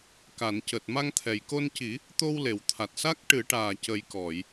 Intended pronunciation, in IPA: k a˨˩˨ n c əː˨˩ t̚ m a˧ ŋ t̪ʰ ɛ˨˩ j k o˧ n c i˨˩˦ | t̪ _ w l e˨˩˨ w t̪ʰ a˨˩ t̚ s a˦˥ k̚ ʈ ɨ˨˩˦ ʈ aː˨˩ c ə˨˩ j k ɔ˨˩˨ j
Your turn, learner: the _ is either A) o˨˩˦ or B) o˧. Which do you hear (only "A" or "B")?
B